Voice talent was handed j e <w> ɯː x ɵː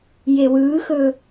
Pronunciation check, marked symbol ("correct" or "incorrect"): correct